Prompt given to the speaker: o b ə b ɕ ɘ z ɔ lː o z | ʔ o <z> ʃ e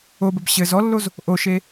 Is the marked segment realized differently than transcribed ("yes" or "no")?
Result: yes